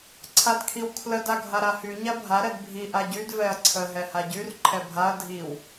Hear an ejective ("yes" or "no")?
no